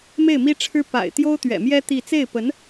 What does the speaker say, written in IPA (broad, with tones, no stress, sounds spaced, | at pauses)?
m e˥˩ ɪ̯ m i˥ ʈ͡ʂʰ ɻ̩˥ p a̰˨˩ ɪ̯ t̪ j o˥ ʊ̯ t̪ ɥ ɛ̰˨˩ m j ɛ˥ t̪ i˥˧ t͡s e˥˩ ɪ̯ p ə˧˥ n